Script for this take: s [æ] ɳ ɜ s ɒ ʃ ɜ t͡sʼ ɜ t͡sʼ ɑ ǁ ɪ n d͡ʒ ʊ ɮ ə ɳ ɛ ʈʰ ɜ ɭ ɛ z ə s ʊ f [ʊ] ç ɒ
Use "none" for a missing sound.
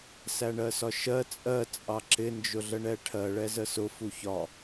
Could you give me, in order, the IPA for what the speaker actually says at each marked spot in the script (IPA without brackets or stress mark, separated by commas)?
æ, u